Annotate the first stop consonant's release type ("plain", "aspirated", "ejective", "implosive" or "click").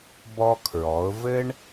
plain